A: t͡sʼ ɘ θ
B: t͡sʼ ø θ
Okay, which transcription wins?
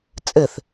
A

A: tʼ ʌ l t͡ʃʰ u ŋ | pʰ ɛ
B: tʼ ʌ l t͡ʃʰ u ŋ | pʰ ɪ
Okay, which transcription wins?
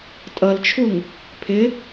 B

